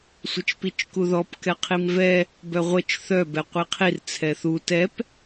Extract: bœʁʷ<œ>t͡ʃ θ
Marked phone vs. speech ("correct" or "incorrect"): incorrect